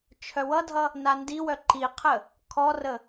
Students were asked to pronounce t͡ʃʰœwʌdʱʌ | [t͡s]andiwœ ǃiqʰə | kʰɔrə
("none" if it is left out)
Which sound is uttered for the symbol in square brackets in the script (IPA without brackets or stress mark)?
n